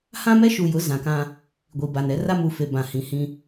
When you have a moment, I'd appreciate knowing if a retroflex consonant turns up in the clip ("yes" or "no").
no